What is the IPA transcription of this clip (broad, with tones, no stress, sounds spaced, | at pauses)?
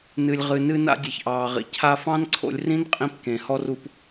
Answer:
n ɨ˩ lʲ ʁ ɨ˩ n ɨ˧ n a̰˧ dʲ e˩ ç ʔ ɑː˩ ʁ ḭ˩ cʰ a˧ f ɑ̃˥ n ǀʰ o̰˧ lʲ r ĩ˥ n qʼ ĩ˧ p k ẽ˩ h ɔ˧ r u˧ p